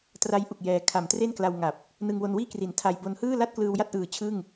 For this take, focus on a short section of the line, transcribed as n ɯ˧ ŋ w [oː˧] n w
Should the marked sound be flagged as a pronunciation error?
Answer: yes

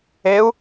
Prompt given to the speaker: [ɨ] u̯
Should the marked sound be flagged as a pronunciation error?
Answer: yes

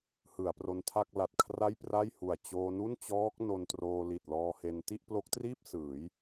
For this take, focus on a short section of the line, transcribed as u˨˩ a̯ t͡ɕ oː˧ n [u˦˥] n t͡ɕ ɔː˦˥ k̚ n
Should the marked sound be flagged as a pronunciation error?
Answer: yes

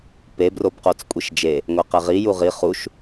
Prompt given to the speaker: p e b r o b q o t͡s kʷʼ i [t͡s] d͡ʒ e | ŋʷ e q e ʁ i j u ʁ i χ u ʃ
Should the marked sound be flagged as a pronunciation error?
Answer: yes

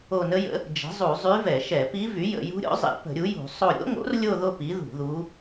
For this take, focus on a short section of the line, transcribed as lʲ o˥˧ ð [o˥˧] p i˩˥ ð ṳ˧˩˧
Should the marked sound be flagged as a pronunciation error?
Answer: no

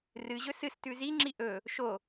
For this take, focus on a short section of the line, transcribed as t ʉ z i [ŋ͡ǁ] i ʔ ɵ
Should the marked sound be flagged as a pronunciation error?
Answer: no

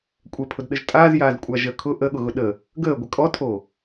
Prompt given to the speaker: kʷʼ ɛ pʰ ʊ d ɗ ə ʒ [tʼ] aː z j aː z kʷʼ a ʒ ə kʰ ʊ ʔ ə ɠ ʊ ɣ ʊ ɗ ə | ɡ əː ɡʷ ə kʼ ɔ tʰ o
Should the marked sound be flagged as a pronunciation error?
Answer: no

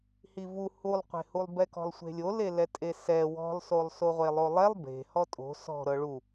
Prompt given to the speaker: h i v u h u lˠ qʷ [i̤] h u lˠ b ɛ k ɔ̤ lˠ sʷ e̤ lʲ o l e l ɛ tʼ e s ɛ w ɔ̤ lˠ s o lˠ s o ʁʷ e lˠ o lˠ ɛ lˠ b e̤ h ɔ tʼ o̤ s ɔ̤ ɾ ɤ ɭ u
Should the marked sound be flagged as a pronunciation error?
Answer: yes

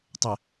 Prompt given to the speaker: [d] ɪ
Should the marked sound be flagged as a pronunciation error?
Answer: yes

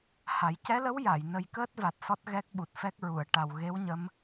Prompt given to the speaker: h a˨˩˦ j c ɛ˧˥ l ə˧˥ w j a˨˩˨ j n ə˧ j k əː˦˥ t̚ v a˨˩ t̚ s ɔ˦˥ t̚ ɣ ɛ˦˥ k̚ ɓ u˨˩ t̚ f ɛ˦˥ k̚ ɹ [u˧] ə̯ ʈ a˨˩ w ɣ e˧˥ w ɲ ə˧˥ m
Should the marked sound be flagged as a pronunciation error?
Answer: yes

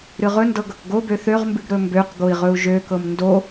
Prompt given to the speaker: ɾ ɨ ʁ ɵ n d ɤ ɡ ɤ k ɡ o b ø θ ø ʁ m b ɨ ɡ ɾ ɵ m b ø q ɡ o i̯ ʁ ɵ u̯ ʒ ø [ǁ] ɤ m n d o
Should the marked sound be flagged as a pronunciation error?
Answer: yes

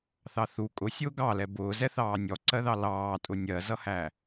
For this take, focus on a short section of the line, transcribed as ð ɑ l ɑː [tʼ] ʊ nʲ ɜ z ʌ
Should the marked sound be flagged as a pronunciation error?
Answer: no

